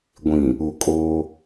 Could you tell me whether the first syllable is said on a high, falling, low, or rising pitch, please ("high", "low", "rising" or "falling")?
low